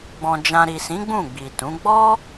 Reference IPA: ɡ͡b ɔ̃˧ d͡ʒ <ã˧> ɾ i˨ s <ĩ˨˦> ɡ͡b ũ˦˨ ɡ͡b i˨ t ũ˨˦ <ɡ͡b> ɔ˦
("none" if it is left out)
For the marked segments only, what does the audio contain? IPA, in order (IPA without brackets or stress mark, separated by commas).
ã˧, ĩ˨˦, ɡ͡b